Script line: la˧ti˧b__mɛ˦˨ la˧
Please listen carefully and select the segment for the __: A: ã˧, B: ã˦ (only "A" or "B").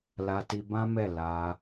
B